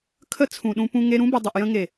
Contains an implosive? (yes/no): yes